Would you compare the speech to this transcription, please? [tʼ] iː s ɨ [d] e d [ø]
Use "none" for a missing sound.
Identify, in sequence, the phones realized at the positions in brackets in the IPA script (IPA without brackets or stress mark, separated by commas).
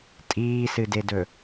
tʼ, d, ɵ